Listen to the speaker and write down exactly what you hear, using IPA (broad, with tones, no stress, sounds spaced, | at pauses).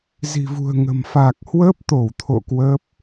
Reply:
z i̤˨˩ v ṳ˨˩ ə̯ ŋ ə̤˨˩ m f a˨˩ k̚ h w əː˦˥ p̚ t̪ o˧˩ w t̪ʰ o̰˧˨ k w əː˦˥ p̚